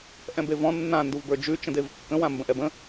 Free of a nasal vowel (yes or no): no